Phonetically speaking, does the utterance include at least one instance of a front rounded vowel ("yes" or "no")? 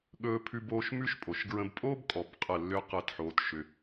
yes